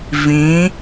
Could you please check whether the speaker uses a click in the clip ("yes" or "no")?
no